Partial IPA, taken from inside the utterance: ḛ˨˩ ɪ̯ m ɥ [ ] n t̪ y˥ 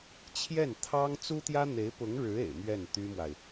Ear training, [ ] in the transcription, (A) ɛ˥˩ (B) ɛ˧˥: A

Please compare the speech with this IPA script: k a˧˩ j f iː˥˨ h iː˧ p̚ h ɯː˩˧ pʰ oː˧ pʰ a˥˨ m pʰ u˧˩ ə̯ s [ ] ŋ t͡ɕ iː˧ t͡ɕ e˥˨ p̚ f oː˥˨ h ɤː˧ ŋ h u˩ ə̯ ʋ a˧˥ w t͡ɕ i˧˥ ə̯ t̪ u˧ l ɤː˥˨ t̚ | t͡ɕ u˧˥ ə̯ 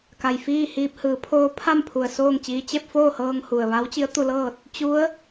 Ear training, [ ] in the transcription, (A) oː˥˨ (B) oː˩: A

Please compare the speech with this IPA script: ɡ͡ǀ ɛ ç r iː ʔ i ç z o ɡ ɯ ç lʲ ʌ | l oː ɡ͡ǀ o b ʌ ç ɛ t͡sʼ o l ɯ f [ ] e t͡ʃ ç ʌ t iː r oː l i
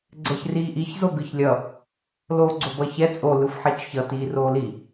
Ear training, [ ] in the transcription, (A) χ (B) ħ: B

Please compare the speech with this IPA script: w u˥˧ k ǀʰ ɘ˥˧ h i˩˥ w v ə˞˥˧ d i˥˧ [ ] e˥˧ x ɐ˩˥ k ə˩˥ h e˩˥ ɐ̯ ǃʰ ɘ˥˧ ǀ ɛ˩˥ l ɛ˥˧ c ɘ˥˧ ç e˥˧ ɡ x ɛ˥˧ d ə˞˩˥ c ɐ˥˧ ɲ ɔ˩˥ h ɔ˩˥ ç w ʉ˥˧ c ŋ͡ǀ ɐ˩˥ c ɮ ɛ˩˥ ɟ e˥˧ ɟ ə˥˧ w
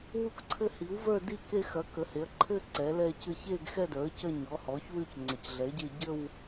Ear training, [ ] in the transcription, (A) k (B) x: A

